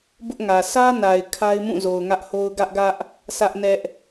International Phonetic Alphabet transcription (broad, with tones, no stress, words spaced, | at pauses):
bʊ˦ʔŋä˨ sä˦na˨ɪ̯ kʰa˦ɪ̯mũ˦˨zo˨ʊ̯ ŋä˦ʔho˦ʊ̯ ɡä˦ʔɡä˦ʔ | sʰä˦ʔnɛ˦ʔ